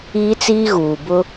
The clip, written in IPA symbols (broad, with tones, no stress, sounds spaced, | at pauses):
iː˦ t͡s iː˦ ɣ uː˨ b ʊ˦